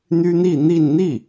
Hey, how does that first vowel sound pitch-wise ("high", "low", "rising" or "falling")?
high